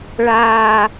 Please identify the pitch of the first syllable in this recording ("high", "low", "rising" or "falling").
low